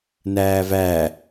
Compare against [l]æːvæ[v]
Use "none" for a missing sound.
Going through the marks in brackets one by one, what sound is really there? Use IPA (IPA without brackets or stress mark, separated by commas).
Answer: n, none